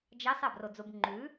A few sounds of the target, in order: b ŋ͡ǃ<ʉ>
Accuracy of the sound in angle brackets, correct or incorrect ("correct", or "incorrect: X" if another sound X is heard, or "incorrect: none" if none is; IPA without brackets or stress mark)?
correct